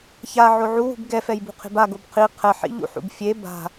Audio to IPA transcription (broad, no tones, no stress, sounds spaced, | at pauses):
ç a ʕ o ʕ u w ṳ b ɡ ɛ f ɛ j b ṳ qʰ e̤ b a ɡ o b qʰ i qʰ ɛ ħ ḭ ʎ ṵ ħ ṵ b fʲ e b a̤